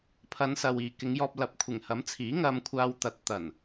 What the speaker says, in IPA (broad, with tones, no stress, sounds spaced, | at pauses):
pʰ ɐ˨˧ n s ɐ˨ w iː˨ k ɪ˨˧ ŋ j ɔː˧ p̚ l ɐ˨˥ p̚ kʷʰ ɪ˨˩ ŋ h ɐ˨˥ m t͡sʰ iː˨˥ ŋ ɐ˧ m kʷʰ aː˧ w t̪ ɐ˨˥ t̚ t̪ ɐ˨˩ n